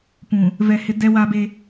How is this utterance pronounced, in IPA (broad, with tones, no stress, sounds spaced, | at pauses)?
p ũ˨ | v ɛ˨ h ɪ˨˦ d ɛ˦ w a˦ b e˦